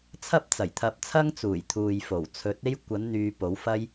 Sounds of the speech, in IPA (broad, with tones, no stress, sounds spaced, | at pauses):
t͡sʰ ɐ˥ p̚ t͡s ɐ˨˩ j t̪ʰ ɐ˧ p̚ t͡sʰ ɐ˥ ŋ t͡s uː˨˩ j t̪ʰ uː˨ j f o˨˩ w t͡sʰ ɵ˨˥ t̚ e˥ j kʷ ɐ˨˥ n n̪ yː˨˧ p o˨˥ w f ɐ˥ j